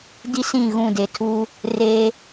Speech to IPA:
di˦sĩ˦˨ ɣũ˦˨de˨tʰuː˦ | reː˦

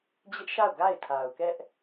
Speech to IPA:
d͡ʑɪ˦ʔʃa˦˨ʊ̯ ɡa˦˨ɪ̯tʰa˨ʊ̯kɛ˦ʔ

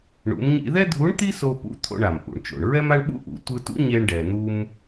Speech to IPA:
ɳṵ˩˧mɲḭ˧ðɛ˥dʱu˧˥ɳ t̪i˥so˧pṵ˧ t̪ʰo̰˧ɳa˩mʔṵ˩ɳt͡ʃo̰˩ɳ ɹɛ˥ma˥ɳɓṵ˥ʔṵ˩˧ tʷɯ˧tṵ˥ ɲe˧ɳɖɛ˩n̪u˧m

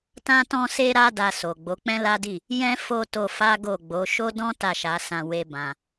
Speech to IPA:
tã˧tɔ̃˧se˧ɾa˧ da˧so˨ ɡ͡bo˨˦k͡pɛ̃˦la˦di˦˨ | jɛ̃˧fo˧ to˧fa˦ɡo˦˨ɡ͡bo˨˦ ʃo˦dɔ̃˦ ta˦˨ʃa˨˦sã˧ we˦bã˧

